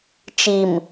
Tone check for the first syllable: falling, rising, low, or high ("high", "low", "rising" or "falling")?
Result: low